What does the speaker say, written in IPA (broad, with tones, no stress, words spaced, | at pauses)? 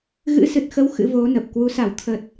ɣɨ̰˧˥sɨ˨˩t̚xə˨˦w xɨ̰˧˥vo˨˦nə˨˩p̚ kwu˨˦sa˧˩w t̪ʰə˨˩t̚